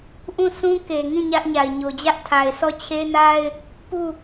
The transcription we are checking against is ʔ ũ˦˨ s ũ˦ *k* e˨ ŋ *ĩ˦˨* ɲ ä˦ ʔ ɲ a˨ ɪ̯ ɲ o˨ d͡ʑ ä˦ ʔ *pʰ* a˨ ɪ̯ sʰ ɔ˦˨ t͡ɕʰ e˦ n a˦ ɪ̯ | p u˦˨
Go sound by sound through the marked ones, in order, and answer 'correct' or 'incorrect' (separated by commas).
correct, correct, incorrect